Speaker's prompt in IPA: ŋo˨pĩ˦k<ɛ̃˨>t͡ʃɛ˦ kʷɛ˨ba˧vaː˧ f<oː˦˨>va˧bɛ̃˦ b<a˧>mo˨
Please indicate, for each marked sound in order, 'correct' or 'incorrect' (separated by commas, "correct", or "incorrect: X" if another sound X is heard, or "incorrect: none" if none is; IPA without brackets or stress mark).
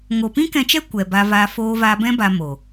incorrect: ɛ̃˧, incorrect: oː˧, correct